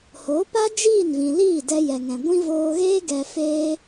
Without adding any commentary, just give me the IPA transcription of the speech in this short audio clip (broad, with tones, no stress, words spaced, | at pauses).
hoː˨˦pa˦ d͡ʒiː˦˨nvĩ˨liː˦˨ dɛ˧jɛ˨ŋɛ̃˨ɡʷĩ˦ voː˧ɣeː˦ ɡɛ˧feː˦